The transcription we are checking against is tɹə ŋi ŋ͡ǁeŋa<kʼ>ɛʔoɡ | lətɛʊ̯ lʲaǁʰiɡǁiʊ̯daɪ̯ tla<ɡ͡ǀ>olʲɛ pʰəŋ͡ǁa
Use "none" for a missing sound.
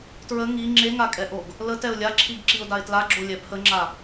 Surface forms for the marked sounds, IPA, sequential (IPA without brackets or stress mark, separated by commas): kʼ, ɡ͡ǁ